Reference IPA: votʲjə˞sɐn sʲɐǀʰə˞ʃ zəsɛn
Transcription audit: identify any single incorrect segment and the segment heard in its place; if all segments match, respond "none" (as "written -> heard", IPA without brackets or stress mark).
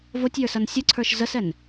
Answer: none